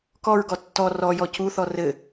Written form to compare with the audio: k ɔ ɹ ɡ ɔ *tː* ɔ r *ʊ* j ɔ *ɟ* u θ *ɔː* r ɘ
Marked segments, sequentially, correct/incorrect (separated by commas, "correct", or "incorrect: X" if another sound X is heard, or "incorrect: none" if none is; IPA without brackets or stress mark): correct, incorrect: ɔ, incorrect: c, incorrect: ɔ